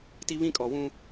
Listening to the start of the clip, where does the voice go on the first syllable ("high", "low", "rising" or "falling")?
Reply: high